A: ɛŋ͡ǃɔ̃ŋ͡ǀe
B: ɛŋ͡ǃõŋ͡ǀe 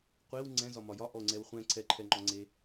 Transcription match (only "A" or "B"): A